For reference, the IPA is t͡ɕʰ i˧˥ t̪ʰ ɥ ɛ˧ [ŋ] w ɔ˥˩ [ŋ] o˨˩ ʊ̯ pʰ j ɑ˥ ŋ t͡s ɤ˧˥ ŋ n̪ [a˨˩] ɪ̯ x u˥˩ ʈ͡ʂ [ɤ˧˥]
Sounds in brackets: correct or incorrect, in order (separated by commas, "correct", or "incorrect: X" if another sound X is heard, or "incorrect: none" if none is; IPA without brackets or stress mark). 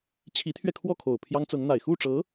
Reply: incorrect: kʰ, incorrect: kʰ, correct, correct